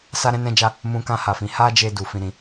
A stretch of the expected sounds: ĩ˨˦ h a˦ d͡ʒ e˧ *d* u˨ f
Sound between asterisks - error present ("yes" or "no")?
no